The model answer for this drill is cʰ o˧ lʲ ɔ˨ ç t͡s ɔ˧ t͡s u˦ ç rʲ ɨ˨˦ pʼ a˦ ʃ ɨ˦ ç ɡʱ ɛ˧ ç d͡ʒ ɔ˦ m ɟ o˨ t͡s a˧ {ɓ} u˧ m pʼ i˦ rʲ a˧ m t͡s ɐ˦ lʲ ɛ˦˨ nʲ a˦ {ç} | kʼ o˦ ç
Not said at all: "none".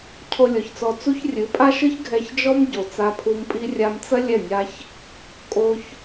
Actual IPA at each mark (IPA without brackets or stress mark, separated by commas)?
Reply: pʰ, ç